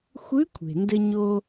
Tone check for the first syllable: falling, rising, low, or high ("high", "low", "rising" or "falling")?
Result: rising